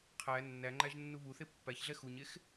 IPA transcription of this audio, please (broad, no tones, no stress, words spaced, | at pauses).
qʰæ nːæŋ͡ǃæʒnːu βuθe pːæçɮɛ xuɲex